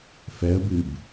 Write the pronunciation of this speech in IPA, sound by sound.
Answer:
f ɛ ə̯ b ɨ b

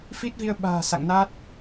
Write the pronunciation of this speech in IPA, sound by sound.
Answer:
f i˦˥ t̚ v i˧ ə̯ ɓ a̤ː˨˩ s a̰˧˨ ŋ n a˦˥ t̚

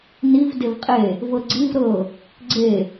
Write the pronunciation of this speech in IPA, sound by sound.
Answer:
n i v d e v qʼ e | v ɤ ɡ͡ǀ i v ɾ ɤ | ɡ͡ǀ e

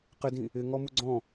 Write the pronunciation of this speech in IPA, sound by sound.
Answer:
q ɪ d ĩ | ɪ ŋ ɔ m u ɡ͡ǀ ɔ̃

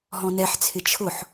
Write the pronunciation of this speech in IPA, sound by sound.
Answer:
ɦ ɔ̃ n ɛ ħ t͡sʰ ɪ t͡ʃʰ ʊ ħ

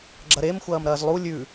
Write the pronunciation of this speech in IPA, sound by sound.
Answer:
ɡ͡ǁ ɐ ɾ e m xʷ ɐː m ɾ ɐː z lˠ u lʲ ʉ

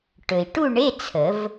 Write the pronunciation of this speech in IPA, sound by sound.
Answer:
ʈ ɵ˩ i̯ ʈ u˥˧ ɳ e˧˥˧ t͡sʰ ə˨˩˦ v

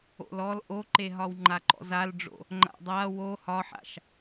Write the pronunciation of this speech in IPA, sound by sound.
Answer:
o̰ l ɔ l ʔ o ǃ e ɦ ɒ w ŋ͡ǃ a ǃ ɔ̰ z a l ɖ͡ʐ o̰ | ŋ͡ǃ a̰ dˤ a w o h ɒ ħ a̰ ʃ

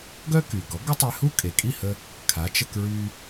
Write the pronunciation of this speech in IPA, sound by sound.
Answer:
ɡ œ˥ k y˩ ɡ ɔ˩˥ ɡ ə˥ tˤ e˧ h u˥ kʼ e˩ kʼ i˥˩ h ə˧ | kʰ a˩˥ t͡ʃ ə˧ k ɹ y˧

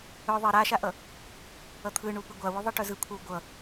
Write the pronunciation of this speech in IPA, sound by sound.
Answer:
œ ðˤ i ɾ a ʃ a ʔ ʌ | ʌ t̪ʰ ɯ ɳ u p ɯ ɡʷ a w ʉ ðˤ ʌ ʈ œ z ɯ kʷʰ a w ɡʷ ʌ

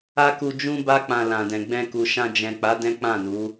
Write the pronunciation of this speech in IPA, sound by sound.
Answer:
a˦ k u˧ d͡ʒ ũ˦ b a˦ k͡p ã˧ l ã˨ d ɛ̃˨ ɡ͡b ɛ̃˧ k u˨ ʃ ã˧ d͡ʒ ɛ̃˨ k͡p a˨˦ d ɛ̃˦ k͡p ã˦˨ n u˨˦

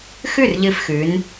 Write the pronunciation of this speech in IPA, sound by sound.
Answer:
x ʉ˥˩ r ʎ ɨ˧˩ f x ʉ˩˧ n

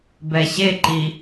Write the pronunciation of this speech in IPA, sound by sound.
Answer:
b ɛ ɕ e ǃ i

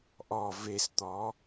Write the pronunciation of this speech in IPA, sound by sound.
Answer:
ʔ ɔ v e s t̪ ɔ

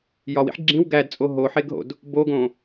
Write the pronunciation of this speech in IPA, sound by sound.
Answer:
j ɒ w ḭ ħ ɡ͡ǁ ĩ w ɡ æ d t͡sʼ o ɦ o ħ e ɡ ɦ o̰ d | b o ɡ õ

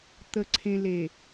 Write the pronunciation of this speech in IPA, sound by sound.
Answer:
t̪ ə˨ ǀʰ ẽ˨ l e˨

